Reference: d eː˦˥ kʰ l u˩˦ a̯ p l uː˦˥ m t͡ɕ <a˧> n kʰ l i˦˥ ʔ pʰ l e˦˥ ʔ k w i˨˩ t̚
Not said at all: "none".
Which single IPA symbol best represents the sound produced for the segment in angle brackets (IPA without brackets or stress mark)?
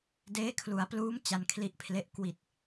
a˧